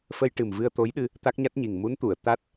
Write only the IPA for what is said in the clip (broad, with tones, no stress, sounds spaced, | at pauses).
f ə˧ j ʈ ɨ˨˩ m v ɨ˧ ə̯ t̪ o˧˥ j ɗ ɨ˧ | t̪ a˦˥ k̚ ɲ a˦˥ t̚ ɲ i˨˩ ŋ m u˧˥ n t̪ u˨˩˨ ə̯ t̪ a˦˥ t̚